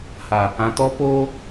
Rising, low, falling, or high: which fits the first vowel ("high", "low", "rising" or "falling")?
low